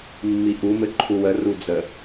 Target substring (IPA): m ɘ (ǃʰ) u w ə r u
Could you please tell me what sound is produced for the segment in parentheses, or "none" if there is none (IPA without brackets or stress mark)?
ǃʰ